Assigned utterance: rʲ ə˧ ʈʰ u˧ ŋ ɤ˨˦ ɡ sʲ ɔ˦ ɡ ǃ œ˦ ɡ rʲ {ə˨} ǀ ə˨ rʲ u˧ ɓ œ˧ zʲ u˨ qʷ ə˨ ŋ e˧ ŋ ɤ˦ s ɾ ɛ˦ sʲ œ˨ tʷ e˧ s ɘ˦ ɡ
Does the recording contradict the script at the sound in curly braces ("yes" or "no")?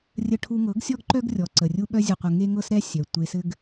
yes